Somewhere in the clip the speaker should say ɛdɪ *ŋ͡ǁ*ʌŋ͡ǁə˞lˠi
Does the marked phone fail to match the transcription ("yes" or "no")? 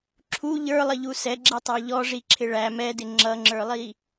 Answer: no